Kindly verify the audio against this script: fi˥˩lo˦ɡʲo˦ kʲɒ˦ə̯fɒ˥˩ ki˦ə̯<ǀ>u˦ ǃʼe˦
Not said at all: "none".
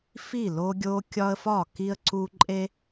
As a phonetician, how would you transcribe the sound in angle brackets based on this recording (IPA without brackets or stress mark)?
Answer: ǀ